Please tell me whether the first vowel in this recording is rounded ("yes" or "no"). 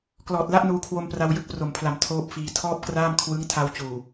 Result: yes